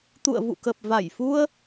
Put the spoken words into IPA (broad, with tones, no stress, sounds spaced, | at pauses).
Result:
t̪ ṵ˧˨ ə̯ v ṵ˧˨ k ə˨˩ p̚ v a˧˩ j f u˧ ə̯